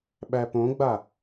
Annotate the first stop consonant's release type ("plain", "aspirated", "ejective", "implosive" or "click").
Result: implosive